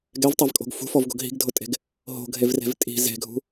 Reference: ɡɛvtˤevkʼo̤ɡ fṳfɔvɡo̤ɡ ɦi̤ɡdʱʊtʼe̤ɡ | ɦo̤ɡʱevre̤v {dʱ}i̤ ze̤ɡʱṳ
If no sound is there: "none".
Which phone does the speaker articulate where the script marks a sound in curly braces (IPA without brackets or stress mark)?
tʼ